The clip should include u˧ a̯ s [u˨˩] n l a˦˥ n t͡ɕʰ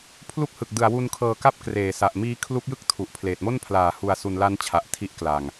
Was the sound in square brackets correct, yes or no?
no